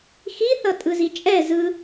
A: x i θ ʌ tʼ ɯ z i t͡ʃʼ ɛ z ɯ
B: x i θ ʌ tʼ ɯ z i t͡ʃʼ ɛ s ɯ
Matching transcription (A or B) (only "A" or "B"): A